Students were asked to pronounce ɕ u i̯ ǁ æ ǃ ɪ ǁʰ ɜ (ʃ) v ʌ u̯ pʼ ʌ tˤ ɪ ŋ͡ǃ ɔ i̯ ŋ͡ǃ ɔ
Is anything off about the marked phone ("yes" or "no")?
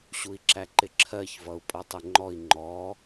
yes